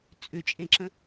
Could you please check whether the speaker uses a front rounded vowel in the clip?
yes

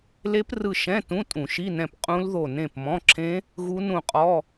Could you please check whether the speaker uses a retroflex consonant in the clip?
no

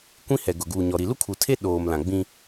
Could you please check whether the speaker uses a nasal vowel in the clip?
yes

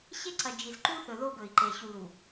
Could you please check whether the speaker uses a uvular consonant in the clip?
no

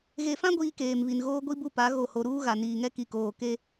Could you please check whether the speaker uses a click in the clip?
no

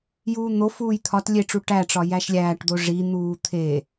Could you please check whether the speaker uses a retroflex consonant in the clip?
yes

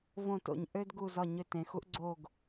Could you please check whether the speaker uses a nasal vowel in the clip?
yes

